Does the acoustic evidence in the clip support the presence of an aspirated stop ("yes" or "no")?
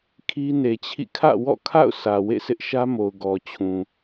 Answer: yes